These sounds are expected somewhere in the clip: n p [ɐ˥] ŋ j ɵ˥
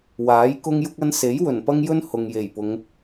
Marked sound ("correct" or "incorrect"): correct